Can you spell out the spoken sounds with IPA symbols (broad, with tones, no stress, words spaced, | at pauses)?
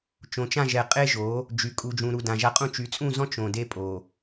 t͡ʃõ˨t͡ʃã˦˨ʒɛ˨ qʼe˦ʒo˨˦ | d͡ʒy˨ kʼu˨d͡ʒũ˨ɾu˨ dã˨ʒa˦qʼũ˦ t͡ʃy˨t͡sʼũ˦˨zɔ̃˦ t͡ʃõ˨de˦pʼo˨